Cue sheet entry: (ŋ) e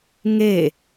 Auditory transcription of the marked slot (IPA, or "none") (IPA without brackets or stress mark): ŋ